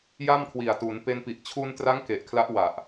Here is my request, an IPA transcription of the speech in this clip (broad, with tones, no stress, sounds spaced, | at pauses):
j a˥˩ m kʰ w i˨˩ a̯ t u˩˦ n p e˧ n p i˨˩ ʔ t͡ɕʰ u˧ n t r a˦˥ ŋ k e˨˩ ʔ kʰ l a˦˥ ʔ w a˨˩ ʔ